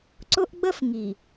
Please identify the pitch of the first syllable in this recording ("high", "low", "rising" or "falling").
high